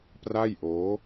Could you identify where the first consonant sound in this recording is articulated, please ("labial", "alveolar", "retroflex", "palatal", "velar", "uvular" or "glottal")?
labial